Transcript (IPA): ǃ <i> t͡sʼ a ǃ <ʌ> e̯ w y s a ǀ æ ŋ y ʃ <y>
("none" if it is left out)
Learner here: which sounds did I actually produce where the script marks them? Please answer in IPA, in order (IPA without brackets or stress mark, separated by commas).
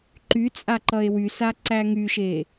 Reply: y, ʌ, e